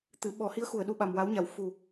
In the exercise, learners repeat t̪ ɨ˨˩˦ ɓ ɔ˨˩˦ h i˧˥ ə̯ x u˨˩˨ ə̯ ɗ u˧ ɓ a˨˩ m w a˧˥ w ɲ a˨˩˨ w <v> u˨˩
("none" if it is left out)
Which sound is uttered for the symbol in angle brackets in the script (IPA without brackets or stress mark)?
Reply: f